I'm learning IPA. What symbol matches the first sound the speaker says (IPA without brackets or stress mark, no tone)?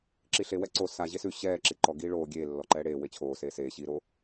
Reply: ǁ